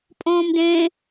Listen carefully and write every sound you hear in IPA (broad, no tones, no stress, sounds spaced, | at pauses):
pʼ õː m d ẽ